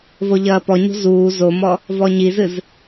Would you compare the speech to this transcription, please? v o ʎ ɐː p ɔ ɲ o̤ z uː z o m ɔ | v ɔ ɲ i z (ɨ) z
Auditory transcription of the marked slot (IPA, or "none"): ɨ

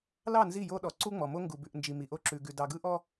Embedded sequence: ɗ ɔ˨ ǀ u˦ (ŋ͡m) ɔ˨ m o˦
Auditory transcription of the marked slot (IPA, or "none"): ŋ͡m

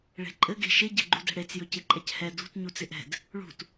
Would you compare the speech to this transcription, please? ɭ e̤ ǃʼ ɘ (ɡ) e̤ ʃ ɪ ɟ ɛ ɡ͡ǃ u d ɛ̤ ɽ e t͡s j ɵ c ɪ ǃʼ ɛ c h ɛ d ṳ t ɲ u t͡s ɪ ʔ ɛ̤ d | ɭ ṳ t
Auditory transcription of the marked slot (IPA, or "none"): ɡ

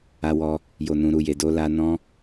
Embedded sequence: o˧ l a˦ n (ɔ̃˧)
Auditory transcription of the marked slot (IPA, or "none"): ɔ̃˦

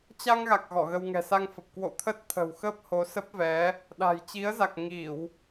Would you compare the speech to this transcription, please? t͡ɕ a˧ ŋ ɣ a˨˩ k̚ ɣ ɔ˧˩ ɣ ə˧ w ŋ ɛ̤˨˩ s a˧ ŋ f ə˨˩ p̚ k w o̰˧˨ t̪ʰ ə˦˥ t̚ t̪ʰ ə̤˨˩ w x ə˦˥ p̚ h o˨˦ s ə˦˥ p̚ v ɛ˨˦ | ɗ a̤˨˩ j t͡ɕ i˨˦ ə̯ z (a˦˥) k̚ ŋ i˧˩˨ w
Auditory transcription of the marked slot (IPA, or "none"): a˨˩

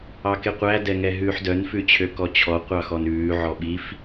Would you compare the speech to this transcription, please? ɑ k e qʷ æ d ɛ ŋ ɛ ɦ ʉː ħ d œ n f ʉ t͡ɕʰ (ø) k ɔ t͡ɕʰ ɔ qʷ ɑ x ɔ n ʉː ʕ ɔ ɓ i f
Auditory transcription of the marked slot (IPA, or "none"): ø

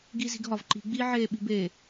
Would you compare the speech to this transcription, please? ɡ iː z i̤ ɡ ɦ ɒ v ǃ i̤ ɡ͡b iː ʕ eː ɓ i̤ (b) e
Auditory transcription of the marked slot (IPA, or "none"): b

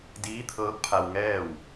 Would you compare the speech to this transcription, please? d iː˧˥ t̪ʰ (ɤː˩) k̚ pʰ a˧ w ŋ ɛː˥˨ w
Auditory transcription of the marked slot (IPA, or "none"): ɤː˧˥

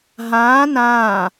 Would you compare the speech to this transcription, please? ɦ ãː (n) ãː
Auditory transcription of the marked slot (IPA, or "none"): n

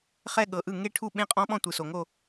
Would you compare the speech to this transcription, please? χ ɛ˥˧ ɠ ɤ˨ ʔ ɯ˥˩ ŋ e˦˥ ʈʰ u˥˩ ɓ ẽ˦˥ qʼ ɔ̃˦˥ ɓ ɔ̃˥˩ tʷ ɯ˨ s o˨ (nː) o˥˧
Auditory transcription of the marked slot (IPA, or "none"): ŋ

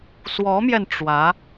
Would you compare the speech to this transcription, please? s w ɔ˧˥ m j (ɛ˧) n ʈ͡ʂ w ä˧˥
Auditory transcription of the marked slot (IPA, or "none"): ɛ˧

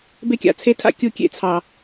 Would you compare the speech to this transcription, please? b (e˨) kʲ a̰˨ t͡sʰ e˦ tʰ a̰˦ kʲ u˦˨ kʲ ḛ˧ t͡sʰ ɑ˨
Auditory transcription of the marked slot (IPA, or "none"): e˦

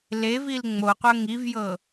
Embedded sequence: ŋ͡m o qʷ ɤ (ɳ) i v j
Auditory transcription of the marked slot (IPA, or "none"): ŋ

